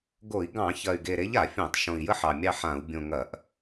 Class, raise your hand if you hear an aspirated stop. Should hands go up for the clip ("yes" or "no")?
no